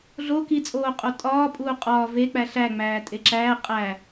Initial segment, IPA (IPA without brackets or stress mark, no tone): ɮ